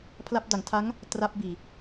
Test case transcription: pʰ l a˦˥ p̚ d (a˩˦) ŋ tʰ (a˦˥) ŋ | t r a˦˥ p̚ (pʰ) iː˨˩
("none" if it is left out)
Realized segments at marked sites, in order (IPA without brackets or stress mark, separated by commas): a˩˦, a˦˥, b